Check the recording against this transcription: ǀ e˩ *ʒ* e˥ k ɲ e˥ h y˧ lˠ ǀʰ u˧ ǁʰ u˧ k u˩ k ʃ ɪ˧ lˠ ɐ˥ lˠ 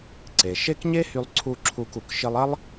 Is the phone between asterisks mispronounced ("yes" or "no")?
yes